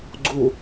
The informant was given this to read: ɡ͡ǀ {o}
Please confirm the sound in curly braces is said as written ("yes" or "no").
no